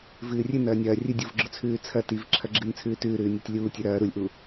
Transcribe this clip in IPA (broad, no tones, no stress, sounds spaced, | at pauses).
v ɨː rʲ ɨ n ɐː nʲ ɐː rʲ ɨ dʲ u v ɡ͡ǁ ɵ t͡sʰ ʉː t͡sʰ ɐ t i v ǁʰ ɐ ɡ͡ǁ ɨ n t͡sʰ ʉː t ʉː ɾ ʉː nʲ ɐ tʲ lʲ uː tʲ ʉ ɾ ɐː ɾ u lʲ ʔ u